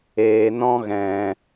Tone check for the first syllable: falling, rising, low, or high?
low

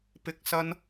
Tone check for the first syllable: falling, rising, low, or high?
high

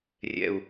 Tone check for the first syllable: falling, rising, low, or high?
low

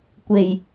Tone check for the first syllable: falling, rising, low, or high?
low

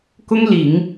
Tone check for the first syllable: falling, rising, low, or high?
high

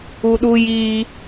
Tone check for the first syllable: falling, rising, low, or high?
high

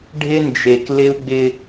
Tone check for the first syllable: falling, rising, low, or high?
high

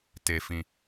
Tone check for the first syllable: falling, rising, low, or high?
high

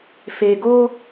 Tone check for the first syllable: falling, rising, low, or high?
low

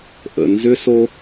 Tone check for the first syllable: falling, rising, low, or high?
low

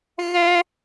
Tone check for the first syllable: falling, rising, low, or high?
high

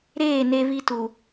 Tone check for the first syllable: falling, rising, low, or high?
falling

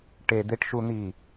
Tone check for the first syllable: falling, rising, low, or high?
low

